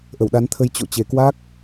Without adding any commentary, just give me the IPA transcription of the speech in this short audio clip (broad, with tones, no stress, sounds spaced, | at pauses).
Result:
ʔ ə˧˩ w ɗ a˨˦ n t̪ʰ ə˧ j t͡ɕ o̰˧˨ t͡ɕ e˨˩ k w a˦˥ k̚